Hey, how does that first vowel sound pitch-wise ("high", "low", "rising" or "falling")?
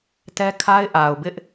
high